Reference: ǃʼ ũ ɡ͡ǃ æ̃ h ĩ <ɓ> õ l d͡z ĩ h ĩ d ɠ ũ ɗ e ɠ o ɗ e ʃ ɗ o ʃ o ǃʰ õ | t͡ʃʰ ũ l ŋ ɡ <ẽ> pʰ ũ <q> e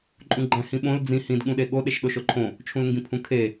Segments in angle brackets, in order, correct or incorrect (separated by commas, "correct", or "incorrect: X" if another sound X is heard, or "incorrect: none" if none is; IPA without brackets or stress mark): correct, incorrect: ĩ, incorrect: kʰ